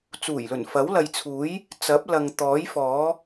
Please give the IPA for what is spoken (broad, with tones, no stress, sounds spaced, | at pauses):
t͡s uː˨˩ j l ɵ˨˩ n f ɐ˨˥ w l ɐ˨ j t͡sʰ uː˨˥ j | t͡s ɐ˨˥ p̚ l ɐ˨ ŋ t̪ ɔː˨˥ j f ɔː˨˥